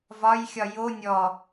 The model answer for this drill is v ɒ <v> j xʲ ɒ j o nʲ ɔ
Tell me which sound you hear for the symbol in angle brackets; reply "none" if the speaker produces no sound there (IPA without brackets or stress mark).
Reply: none